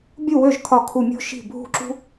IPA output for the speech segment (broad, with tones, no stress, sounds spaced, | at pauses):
bʲ u˥˩ w ø˥˩ ʒ kʰ ɒ˧˩ kʰ u˧˩ mʲ o̤˥ ʃ i̤˥˩ bʱ ṳ˥˩ ǁ ṳ˥